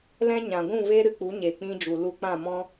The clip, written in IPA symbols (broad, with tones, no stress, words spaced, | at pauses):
lɛ̃˦ɲã˨ ɡʷũ˦˨ve˦ ɾɨ˧k͡pu˨˦ ɲe˨ k͡pĩ˧d͡ʒu˨ lu˧k͡pã˦˨mɔ̃˦